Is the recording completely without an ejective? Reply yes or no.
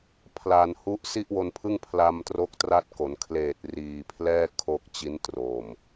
yes